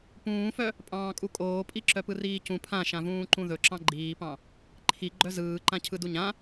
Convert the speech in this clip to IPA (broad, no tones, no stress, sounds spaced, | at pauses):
p ũː f œ | pʼ ɑ̃ː kʼ u kʼ oː pʼ i ǁ œ p ɯ r iː c ũ pʰ ã ʃ ã v ũː ǃ ũ ð ɵ ǁ ɑ̃ ɡ͡ǃ iː p ɑ̃ | ǃʰ i ɡ͡ǃ œ z ɯː ǃ ã cʰ ɯ d u ɲ ã